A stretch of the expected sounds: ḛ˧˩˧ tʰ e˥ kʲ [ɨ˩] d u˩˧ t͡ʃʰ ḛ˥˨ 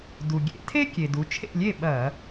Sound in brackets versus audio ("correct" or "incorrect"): incorrect